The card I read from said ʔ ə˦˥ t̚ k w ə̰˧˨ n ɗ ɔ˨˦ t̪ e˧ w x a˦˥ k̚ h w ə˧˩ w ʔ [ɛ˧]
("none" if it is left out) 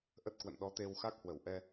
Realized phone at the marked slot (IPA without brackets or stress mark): ɛ˧